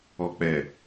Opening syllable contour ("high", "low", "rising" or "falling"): low